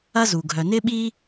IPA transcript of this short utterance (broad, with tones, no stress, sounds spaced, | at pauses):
ɐ˦ z u˨ ɡʱ œ˨ n ɪ˦ ɓ i˦